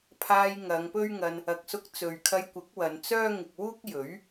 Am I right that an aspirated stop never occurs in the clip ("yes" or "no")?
no